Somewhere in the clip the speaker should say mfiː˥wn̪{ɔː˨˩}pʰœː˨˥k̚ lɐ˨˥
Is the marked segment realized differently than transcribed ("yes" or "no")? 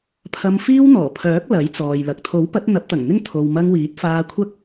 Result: no